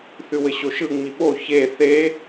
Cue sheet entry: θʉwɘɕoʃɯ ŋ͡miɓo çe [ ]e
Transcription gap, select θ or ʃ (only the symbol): θ